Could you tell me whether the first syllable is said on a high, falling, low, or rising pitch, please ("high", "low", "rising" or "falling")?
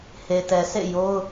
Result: low